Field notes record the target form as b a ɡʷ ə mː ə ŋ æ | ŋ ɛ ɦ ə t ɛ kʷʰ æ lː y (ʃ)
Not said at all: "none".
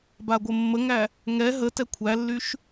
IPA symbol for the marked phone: ʃ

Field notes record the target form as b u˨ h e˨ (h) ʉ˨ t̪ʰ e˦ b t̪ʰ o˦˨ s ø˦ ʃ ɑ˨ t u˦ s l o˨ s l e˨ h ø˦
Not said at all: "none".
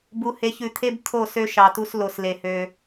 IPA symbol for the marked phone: ç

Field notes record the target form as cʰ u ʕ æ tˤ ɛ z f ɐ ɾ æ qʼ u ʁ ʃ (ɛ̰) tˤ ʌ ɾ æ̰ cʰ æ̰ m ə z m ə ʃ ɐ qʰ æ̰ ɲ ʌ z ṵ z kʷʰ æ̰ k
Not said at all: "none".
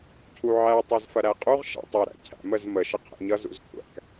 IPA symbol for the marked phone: æ̰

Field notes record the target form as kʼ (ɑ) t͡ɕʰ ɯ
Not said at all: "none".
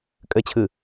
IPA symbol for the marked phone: ə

